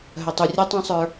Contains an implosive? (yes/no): no